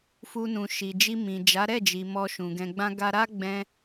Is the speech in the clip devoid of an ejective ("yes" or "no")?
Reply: yes